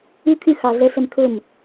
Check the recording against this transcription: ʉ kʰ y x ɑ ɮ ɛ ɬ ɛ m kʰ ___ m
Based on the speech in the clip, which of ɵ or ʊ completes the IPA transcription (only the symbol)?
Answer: ɵ